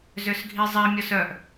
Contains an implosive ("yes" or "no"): no